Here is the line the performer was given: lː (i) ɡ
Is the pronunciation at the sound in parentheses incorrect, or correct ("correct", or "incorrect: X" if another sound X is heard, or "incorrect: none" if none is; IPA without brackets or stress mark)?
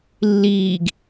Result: incorrect: iː